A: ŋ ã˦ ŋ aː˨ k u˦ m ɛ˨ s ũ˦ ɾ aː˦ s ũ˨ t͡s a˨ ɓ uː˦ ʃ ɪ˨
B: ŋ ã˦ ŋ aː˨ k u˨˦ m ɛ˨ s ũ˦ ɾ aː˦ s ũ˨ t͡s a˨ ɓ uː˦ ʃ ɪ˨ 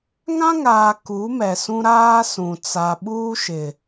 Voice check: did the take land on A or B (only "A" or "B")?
B